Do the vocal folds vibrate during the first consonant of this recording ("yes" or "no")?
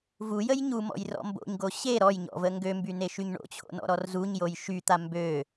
yes